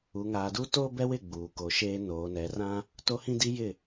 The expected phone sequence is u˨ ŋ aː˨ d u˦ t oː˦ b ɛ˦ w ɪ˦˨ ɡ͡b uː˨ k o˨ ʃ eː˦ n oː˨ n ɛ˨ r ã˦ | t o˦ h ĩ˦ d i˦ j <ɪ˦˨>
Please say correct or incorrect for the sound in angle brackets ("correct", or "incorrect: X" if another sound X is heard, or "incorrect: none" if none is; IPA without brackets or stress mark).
correct